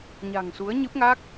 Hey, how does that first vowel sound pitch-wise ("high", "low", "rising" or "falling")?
low